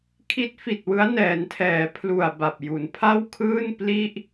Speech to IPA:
kʰ i˦˥ t̚ f i˨˩ t̚ w ɯ˦˥ a̯ n ɛː˩˦ n tʰ ɛː˩˦ pʰ l u˨˩ a̯ b a˨˩ p̚ j u˨˩ n pʰ a˥˩ w kʰ ɯː˥˩ n p l i˥˩ ʔ

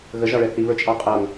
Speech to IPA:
ɣ ə ʒ ɑ ɭ ɛ θ i β ə˞ t͡ʃʼ ɑ qʼ ʌ ŋ

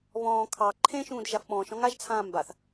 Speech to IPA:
β ɔ̃ː kʰ ɑ ǃʰ ẽ ʃ ũː d ʒ a f ɓ ɔ̃ː ʃ ɔ̃ ŋ a ʒ t͡sʰ ãː m b a θ

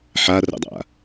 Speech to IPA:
ħ a r ə̰ dˤ a̰

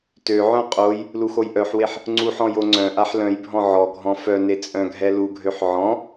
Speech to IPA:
t ø ʕ œ̃ qʼ o j | l u x o j ʔ œ ħ w e ħ | ŋ͡ǀ u ħ ɔ̃ j o ŋ͡ǀ œ̃ ʔ a ħ l œ̃ j bʱ ɔ̃ ʕ ɔ ɡʱ ɔ̃ f œ n e t͡sʼ œ̃ ɡʱ ɛ l u ɡʱ ø ħ ʕ ɔ̃

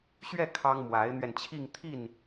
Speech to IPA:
ɕ ɥ ɛ˥˩ kʰ ɑ˥ ŋ m w a˧˥ ɪ̯ n̪ ɥ ɛ˧ n t͡ɕʰ i˥˧ ŋ t̪ʰ i˥˩ n

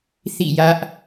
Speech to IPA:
θ ḭ˦˨ j ä˦ ʔ

